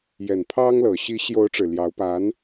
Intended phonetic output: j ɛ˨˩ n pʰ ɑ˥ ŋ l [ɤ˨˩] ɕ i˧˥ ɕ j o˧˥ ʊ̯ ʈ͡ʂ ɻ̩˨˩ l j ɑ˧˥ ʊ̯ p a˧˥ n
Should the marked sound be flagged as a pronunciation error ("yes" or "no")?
no